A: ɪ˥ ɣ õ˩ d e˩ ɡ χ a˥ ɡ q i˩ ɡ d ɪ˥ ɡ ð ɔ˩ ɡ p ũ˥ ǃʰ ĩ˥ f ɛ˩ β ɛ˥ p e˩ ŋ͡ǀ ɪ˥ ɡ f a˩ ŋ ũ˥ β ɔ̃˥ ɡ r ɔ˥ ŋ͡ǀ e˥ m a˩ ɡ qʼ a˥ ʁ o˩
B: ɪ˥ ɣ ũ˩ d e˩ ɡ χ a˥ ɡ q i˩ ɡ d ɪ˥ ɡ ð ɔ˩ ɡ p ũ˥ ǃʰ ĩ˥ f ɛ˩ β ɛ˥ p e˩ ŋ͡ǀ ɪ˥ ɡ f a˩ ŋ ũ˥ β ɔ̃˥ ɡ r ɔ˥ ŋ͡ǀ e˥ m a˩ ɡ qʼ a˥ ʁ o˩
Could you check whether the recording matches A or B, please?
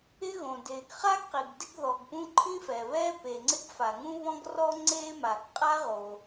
A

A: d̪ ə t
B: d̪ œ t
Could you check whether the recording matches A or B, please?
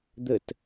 A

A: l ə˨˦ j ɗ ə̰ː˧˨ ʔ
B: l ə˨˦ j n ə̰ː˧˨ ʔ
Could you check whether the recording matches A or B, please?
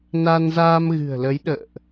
A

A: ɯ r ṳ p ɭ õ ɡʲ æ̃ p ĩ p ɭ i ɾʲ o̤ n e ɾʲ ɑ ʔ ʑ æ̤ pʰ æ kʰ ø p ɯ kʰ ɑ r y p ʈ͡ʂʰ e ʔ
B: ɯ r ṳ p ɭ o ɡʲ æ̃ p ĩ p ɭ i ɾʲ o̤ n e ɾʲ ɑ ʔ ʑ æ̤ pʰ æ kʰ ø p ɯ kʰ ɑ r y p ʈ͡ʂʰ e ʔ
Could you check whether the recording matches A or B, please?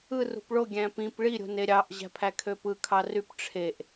B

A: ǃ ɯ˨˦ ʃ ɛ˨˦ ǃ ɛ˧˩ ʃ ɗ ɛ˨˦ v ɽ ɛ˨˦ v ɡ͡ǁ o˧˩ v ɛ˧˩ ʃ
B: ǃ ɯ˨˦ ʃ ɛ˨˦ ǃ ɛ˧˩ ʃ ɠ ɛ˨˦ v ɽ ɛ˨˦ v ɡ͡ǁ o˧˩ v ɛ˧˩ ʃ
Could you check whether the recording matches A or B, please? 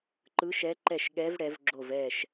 B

